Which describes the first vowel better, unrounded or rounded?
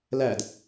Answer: unrounded